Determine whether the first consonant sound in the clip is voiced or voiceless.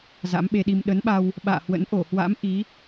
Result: voiced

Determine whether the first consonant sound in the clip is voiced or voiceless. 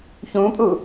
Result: voiceless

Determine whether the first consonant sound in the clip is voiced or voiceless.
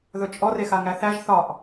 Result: voiced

